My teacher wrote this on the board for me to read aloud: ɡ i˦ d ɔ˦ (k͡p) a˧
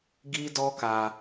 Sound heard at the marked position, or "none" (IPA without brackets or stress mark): k